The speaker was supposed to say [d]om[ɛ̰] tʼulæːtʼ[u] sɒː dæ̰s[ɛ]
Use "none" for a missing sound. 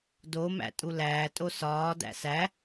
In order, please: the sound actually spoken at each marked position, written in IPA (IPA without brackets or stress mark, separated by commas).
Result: d, æ̰, o, æ